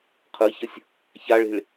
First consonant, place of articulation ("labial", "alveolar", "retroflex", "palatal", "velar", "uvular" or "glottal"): uvular